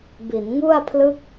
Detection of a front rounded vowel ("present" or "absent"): absent